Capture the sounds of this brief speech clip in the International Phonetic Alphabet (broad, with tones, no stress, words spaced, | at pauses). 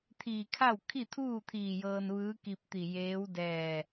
t̪ʰiː˧˩ kʰa˥˨w kʰi˥˨t̪ʰuː˥˨t̪ʰiː˧˩ jɤː˧nʋɯː˧˥ki˧p̚t̪i˧˩ jeː˧˥w dɛː˧˩